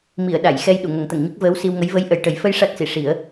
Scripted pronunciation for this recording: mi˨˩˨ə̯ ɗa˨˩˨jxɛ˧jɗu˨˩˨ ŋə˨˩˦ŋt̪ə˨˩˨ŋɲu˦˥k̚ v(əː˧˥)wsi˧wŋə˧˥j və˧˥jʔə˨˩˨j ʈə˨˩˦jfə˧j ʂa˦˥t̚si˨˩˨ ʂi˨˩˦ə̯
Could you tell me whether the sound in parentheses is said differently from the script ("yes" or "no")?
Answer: no